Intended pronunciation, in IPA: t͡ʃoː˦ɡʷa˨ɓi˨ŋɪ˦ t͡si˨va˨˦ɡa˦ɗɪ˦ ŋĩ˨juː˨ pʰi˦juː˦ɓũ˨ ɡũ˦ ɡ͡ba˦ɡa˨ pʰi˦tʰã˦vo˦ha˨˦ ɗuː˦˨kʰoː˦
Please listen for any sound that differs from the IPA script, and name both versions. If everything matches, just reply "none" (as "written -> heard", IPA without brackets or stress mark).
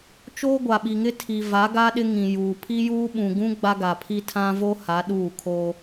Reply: t͡s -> tʰ